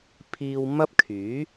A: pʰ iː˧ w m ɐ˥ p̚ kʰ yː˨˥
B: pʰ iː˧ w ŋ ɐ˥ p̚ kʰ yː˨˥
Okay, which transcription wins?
A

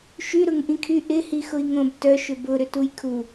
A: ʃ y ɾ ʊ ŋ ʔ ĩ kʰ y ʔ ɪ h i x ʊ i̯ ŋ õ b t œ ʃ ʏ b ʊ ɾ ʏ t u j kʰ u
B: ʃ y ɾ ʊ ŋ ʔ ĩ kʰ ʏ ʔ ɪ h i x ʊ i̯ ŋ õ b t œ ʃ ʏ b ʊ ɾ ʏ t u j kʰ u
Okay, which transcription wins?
A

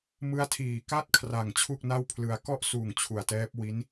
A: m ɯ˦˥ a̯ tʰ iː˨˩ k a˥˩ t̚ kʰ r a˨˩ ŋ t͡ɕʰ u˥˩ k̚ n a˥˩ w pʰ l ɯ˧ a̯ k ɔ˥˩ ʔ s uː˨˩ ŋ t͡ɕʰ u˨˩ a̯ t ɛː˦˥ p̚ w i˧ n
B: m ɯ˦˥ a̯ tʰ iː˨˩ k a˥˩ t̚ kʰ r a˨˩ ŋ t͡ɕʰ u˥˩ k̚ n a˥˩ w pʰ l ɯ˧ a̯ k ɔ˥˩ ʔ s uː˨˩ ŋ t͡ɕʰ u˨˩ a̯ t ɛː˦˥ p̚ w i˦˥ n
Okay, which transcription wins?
B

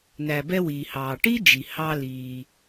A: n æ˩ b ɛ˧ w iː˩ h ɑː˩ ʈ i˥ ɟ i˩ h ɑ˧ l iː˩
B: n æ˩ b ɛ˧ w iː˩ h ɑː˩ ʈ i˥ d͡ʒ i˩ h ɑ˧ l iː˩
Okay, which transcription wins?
B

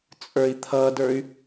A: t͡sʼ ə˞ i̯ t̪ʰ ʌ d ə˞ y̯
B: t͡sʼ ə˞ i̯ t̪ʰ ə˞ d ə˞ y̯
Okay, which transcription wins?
A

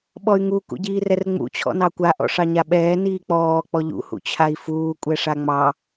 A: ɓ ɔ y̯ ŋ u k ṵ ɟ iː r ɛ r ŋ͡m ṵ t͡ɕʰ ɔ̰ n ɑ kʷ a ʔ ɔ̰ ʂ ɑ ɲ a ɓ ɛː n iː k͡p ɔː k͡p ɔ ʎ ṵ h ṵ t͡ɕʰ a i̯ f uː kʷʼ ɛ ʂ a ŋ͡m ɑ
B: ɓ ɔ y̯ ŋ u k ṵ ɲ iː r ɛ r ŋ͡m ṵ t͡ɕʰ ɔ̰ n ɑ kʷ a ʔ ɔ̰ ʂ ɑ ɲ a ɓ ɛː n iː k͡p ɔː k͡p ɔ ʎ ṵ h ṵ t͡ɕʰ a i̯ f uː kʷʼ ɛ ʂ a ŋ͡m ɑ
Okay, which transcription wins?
A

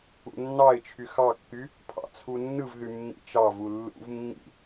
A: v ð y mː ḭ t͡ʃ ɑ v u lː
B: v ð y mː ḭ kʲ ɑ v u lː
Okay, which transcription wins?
A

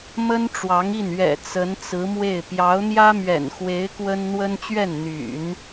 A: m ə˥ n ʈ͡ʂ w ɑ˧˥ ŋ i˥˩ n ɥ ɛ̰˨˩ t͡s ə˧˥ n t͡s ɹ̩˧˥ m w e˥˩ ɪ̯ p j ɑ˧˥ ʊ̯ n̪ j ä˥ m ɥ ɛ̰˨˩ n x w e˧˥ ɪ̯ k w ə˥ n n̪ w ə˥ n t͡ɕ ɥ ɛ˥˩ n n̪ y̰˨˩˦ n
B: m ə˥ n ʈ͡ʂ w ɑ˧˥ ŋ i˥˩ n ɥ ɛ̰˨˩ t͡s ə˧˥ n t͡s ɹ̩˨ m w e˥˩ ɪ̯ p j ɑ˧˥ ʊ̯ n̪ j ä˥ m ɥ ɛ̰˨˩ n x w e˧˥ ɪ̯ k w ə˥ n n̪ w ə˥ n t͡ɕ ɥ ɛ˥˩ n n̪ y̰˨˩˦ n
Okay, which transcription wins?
A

